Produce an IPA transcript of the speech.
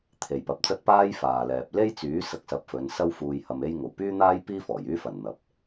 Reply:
t̪ʰe˨jpɐ˨˥p̚t͡sɐ˥t̚ paː˥jfaː˨lɛː˨p̚ le˥jt͡syː˨˥ sɐ˧k̚sɐ˨˥p̚fɵ˨˧n sɐ˥wfuː˧jhɐ˧me˥j ŋo˨˩wpyː˥n̪aː˥j piː˥fɔː˨˩jyː˥ fɐ˨˩n n̪ɐ˨˥p̚

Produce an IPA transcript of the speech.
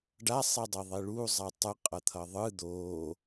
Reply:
ɖasˤidˤi ðˤiɭu zˤatˤɯ qʼʌt̪ʰʌðˤɯ d̪o

